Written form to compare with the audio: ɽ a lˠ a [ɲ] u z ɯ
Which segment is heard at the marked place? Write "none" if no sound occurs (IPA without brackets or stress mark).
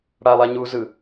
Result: ɲ